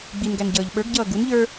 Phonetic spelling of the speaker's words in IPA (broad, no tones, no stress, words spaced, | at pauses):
ɡ͡binɡæn ɟʌːʎɓə˞ɡɟʌː ɡun ʎə˞